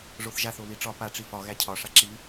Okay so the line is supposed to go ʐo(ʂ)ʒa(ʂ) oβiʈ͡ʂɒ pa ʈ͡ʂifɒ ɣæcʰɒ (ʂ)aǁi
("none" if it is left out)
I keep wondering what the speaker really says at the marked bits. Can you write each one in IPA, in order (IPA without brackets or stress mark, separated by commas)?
θ, θ, ʂ